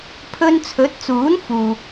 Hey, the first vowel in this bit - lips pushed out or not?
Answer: yes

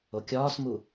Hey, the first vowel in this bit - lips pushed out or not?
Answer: yes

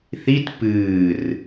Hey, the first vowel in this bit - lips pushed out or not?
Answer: no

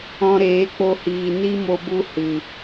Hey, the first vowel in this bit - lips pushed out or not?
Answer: yes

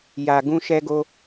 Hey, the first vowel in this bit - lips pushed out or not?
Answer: no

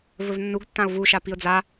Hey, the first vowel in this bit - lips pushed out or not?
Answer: yes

